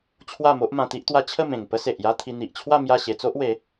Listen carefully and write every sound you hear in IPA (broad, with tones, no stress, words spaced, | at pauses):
t͡ɕʰwa˥˧mo˦ʔ mã˧t̪i˦ʔt̪wa˦ t͡ɕʰə˥˧mẽ˨˩ŋ pə˦se˨ʔja˦t̪ʰi˧ n̪i˨ʔt͡ɕʰwa˥˧ mja˥˧ɕe˧t͡so˦ʔ we˨˦